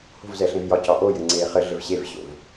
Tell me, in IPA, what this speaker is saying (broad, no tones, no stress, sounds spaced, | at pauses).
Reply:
h o̤ v z ɛ ɬ ẽ v j ɒ c ɒ ʔ o j ɘ ŋ͡ǀ eː χ ɘ ɮ ɘ v ɕ e v ɕ o̰ v